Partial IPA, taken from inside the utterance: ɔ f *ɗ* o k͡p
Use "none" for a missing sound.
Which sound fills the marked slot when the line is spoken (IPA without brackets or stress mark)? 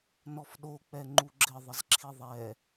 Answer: ɗ